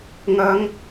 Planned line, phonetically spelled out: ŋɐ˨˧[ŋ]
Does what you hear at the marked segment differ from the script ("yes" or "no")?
no